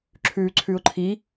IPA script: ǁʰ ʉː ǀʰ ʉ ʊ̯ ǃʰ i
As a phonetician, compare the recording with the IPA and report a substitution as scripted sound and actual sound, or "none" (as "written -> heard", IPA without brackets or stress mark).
none